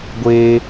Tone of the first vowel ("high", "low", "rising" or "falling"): high